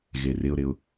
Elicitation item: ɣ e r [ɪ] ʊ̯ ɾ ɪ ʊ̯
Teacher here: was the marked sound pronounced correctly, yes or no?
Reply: yes